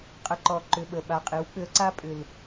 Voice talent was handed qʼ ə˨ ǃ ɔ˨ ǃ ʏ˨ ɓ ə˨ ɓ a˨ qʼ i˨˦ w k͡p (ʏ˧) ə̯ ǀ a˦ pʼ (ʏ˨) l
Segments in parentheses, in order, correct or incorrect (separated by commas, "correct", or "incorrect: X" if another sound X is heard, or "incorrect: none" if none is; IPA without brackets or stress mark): correct, correct